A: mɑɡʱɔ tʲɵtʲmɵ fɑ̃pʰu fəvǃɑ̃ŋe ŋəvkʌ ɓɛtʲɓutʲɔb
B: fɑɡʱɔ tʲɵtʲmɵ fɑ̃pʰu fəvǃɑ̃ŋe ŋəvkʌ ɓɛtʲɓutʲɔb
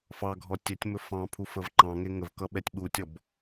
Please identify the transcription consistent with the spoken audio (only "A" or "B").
B